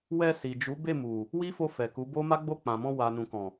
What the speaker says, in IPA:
w ɛ˧ s i˨ d͡ʒ u˨˦ b e˦˨ m u˨ | w i˦ f o˧ f ɛ˨ k u˨˦ b o˦ m a˦ ɡ͡b o˦˨ k͡p ã˨ m ɔ̃˧ w a˨ n ũ˨ k ɔ̃˨

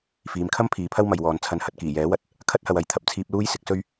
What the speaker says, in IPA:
f iː˨ m kʰ ɐ˥ m pʰ iː˨ pʰ ɐ˥ w m ɐ˨ j w ɔː˨ n t͡sʰ ɐ˧ n h ɐ˧ t̚ k iː˨˩ j ɛː˨˥ w ɐ˨ t̚ | kʰ ɐ˥ t̚ h ɐ˨ w ɐ˨ j t̪ʰ ɐ˨ p̚ t͡sʰ iː˧ p̚ l uː˥ j s ɪ˨˥ k̚ s ɵ˥ ɥ

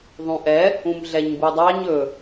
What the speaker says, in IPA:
ðˤ ũ ʔ ɛ | ũ m ɮ ɛ ɲ b u dˤ ɑ ɲ ɵ

